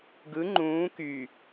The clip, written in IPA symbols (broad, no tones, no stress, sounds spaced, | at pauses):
ɡ ɯ ŋ͡ǃ ũː k y